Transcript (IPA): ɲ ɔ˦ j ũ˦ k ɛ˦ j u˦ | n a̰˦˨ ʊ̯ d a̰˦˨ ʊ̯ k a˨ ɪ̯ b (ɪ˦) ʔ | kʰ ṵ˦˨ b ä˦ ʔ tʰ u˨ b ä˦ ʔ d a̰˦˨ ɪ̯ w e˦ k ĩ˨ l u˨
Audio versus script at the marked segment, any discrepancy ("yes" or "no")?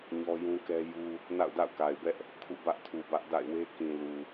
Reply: yes